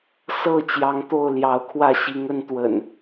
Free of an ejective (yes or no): yes